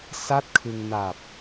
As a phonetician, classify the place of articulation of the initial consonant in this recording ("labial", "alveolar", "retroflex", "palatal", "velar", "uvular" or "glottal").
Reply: alveolar